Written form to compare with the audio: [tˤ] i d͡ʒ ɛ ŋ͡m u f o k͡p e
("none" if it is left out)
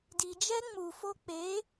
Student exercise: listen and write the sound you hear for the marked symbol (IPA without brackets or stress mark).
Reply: d